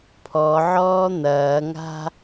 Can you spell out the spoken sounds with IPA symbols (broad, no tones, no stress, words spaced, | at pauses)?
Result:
pʰɔʕɔː n̪ɐːŋa̤